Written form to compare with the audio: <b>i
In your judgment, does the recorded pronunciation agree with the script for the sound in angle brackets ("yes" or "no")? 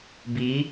yes